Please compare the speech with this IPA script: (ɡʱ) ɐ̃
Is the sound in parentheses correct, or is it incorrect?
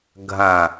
correct